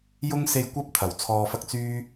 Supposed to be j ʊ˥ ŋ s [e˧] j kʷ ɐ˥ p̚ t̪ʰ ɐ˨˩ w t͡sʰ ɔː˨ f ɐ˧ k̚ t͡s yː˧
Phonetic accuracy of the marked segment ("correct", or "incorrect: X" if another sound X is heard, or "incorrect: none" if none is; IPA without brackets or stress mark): correct